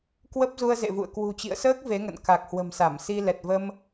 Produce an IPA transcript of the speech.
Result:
k w ə˦˥ p̚ z u˧ ə̯ z ḛ˧˨ v ṵ˧˨ ə̯ k w ṳ˨˩ t͡ɕ ḭ˧˨ ə̯ s əː˦˥ k̚ v e˨˦ ŋ ə̰˧˨ n k a˨˩ k̚ h w ə̤˨˩ m s a˧˩ m s i˧ l ɛ˨˩ t̚ v ə˧ m

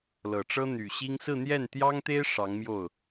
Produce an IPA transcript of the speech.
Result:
l ɤ˨˩ ʈ͡ʂ ɤ˥ n̪ y˨˩ ɕ i˥ ŋ s ɹ̩˥˧ n̪ j ɛ˥˩ n t̪ j ɑ˥ ŋ t̪ e˥ ɪ̯ ʂ ɑ˧˥ ŋ m j o˥˩ ʊ̯

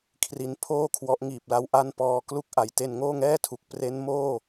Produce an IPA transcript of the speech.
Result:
kʰ r i˦˥ n pʰ oː˥˩ kʰ w ɔ˦˥ ʔ ŋ iː˨˩ p̚ l a˧ w ʔ a˥˩ n p ɔː˧ k l u˦˥ k̚ ʔ a˨˩ j t e˧ n ŋ oː˥˩ ŋ ɛː˥˩ tʰ u˨˩ k̚ p r e˦˥ n m oː˥˩

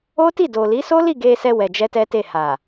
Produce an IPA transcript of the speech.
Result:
o˦ t i˦˨ d o˨ l i˨˦ s o˦ l i˦˨ ɡ e˧ s ɛ˧ w ɛ˧ d͡ʒ ɛ˦ t ɛ˦ t e˦˨ h a˨

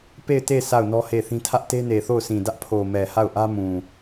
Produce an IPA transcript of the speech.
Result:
p e˦˨ ɪ̯ t e˦˨ s a˦˨ ʊ̯ n ɔ˦ h e˦˨ θ ĩ˦ tʰ ä˦ ʔ t e˦ n e˨ θ o˦˨ ʊ̯ sʰ ĩ˨ d ä˦ ʔ pʰ o˨ m ɛ˨ h a˦˨ ʊ̯ ʔ ä˦ m ũ˨

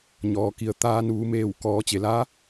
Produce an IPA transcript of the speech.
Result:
ɲ ɔː˩ k i˩ ə̯ t̪ aː˧ n uː˩˧ m eː˧˩ w k ɔː˩˧ t͡ɕ e˩ l aː˧˥

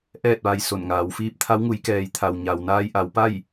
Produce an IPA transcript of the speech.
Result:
ʔ ɛː˥˨ t̚ ʋ a˧ j s o˧˩ n ŋ aː˩˧ w f iː˧˥ p̚ t̪ʰ a˧˥ w ŋ u˩˧ j k ɛː˩˧ j t̪ʰ a˩ w ɲ a˩ w n aː˧ j ʔ a˩˧ w p a˥˨ j

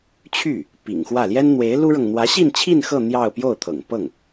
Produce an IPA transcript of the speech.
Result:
t͡ɕʰ y˥˩ | p ḭ˨˩ ŋ x w ä˥˩ l j ɛ˥ n n̪ w e˧˥ ɪ̯ l u˥ ɻ ɤ˨ ŋ n̪ w ä˧˥ ɕ i˥˧ n t͡ɕʰ i˥˧ n x ɤ˥˧ n̪ j ɑ˥˧ ʊ̯ p j o˥˩ ʊ̯ t̪ʰ ɤ̰˨˩ ŋ p ɤ˥˩ ŋ

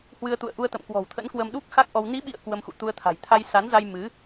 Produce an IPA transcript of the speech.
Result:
h w ɨ˧ ə̯ t̪ ṵ˧˨ ə̯ ʔ u˧ ə̯ t̪ ə̰˧˨ m k w ɔ̤˨˩ w t̪ʰ ə̰˧˥ n k w ə˧ m ɗ u˦˥ k̚ x a˦˥ k̚ ʔ ɔ˧ w n i˨˦ ɓ ḭ˧˨ ə̯ k w ə˧ m x ṵ˧˨ t̪ u˧ ə̯ t̪ʰ a̤˨˩ j t̪ʰ a˧ j s a˨˦ n z a˧ j m ɨ˨˦

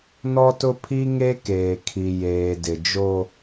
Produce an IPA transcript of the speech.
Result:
n ɔ˦ t ʊ˦ pʰ i˦ ŋ e˦ k eː˨ kʰ i˨ j eː˨ d ɪ˨ d͡ʒ o˦

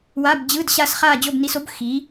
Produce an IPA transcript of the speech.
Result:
w a˧˥˧ b d͡ʑ ɯ˧˥˧ d ɕ a˥˧ s χ aː˥˧ d͡ʑ o˥˧ b n i˧ s o˨˥ b x iː˨˥

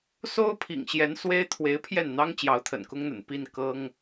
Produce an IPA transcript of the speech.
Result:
s o˥ ʊ̯ pʰ ḭ˨˩ ŋ ɕ j ɛ˧˥ n s w e˥ ɪ̯ t̪ʰ w e˧˥ ɪ̯ pʰ j ɛ˥˩ n n̪ ɑ˥ ŋ t͡ɕ j ɑ˧˥ ʊ̯ t̪ʰ ə̰˨˩ n k ʊ˥ ŋ n̪ ə̰˨˩ n p i˥˩ n k ɤ˥ ŋ

